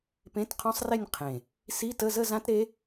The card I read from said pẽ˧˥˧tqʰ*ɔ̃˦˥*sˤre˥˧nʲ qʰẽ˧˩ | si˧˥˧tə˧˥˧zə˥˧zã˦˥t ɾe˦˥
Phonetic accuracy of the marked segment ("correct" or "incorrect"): correct